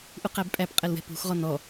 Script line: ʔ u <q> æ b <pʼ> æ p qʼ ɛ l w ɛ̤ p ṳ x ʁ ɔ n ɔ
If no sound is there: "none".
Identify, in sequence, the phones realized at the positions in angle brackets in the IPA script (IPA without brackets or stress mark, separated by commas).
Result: q, pʼ